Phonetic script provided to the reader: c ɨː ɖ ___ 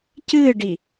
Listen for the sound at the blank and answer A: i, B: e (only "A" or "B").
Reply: A